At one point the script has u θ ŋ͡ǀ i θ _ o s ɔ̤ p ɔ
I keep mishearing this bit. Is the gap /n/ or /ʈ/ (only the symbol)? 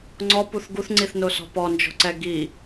n